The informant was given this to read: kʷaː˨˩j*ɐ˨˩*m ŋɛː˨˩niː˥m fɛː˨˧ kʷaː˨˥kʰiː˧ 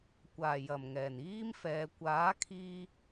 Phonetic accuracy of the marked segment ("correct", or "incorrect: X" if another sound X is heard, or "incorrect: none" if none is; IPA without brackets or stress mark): correct